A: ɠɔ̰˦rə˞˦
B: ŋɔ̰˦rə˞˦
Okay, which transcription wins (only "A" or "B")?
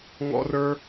B